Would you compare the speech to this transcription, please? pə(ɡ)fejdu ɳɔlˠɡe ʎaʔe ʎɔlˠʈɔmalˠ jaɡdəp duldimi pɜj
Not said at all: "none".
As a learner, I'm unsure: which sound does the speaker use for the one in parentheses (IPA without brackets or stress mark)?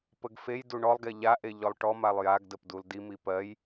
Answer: ɡ